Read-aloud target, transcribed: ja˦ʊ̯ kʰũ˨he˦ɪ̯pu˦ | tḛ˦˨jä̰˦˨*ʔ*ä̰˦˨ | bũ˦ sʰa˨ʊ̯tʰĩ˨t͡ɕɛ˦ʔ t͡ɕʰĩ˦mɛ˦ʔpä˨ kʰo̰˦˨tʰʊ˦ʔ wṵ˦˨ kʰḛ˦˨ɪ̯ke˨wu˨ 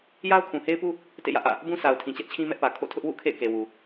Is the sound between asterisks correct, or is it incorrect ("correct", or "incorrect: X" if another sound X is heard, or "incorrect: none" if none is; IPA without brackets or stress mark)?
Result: correct